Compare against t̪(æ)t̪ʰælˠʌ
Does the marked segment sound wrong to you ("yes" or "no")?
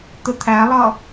yes